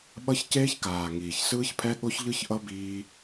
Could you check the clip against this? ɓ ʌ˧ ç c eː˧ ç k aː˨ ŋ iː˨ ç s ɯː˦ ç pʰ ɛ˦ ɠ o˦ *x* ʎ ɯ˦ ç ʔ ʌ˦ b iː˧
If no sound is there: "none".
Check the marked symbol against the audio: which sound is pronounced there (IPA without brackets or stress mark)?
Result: ç